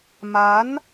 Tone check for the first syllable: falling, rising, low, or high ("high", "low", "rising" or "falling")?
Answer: rising